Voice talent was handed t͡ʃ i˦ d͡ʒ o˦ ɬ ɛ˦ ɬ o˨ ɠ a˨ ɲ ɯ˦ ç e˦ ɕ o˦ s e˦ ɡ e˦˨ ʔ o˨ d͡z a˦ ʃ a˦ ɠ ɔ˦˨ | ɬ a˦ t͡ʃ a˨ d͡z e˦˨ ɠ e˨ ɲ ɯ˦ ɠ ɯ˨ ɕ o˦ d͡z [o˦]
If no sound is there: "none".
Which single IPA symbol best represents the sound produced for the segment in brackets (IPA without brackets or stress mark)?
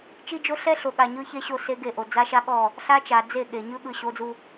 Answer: u˦